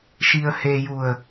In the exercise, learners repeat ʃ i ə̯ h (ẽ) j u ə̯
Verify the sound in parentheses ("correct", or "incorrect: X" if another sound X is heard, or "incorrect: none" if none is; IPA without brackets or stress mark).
incorrect: e